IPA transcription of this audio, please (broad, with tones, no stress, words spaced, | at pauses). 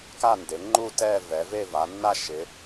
ka˥˧nde˩˧ŋ͡ǃu˥˧ tɛ˥˧vɛ˩˧ve˥˧ va˩˧nːa˥˧ʃɪ˩˧